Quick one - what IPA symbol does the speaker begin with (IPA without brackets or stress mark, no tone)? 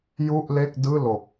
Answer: j